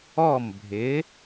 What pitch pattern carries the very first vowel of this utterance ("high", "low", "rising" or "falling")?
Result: falling